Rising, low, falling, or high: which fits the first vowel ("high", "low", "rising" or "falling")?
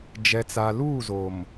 low